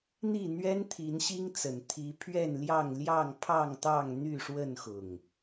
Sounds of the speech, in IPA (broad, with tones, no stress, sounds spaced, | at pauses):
n̪ i˥˨ n̪ ɥ ɛ˦ n t̪ʰ i˨˦ n ɕ i˦ ŋ t͡s ə˨˩ n t̪ʰ i˨˦ pʰ ɥ ɛ˥˨ n l j ɑ˥˨ ŋ l j ɑ˥˨ ŋ pʰ ɑ˥˨ ŋ t̪ ɑ˥˨ ŋ n̪ y˥˨ ʂ w ə˥˨ n x ʊ˨˩ ŋ